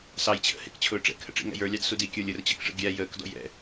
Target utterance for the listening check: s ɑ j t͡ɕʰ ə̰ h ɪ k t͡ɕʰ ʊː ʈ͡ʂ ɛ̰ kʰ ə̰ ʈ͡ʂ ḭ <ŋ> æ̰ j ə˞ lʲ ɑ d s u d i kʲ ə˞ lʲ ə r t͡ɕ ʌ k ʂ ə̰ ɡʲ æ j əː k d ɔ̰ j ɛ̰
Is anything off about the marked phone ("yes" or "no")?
no